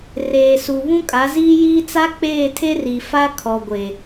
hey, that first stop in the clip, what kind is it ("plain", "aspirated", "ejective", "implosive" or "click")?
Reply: ejective